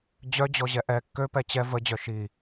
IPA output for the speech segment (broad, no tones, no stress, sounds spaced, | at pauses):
d͡ʑ œ d͡ʑ ɔ ʑ ɛ ʔ ɛ kː ø p ɛ t͡ɕ ɛ v ə d͡ʑ œ ʃ i